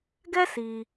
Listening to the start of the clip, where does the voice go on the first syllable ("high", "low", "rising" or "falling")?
high